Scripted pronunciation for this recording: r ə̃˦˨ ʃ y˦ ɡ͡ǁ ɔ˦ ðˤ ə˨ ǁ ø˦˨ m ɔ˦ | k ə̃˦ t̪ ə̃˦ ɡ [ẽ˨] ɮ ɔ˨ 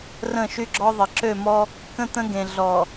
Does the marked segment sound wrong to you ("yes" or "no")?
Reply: no